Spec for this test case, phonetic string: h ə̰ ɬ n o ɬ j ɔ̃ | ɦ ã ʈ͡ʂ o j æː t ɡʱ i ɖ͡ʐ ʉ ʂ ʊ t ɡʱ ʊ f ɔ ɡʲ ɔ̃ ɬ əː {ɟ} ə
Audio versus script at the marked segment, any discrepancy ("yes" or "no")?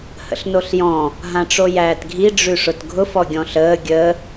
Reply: yes